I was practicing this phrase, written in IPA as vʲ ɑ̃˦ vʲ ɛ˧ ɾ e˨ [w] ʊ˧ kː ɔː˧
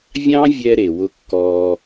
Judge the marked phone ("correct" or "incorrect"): correct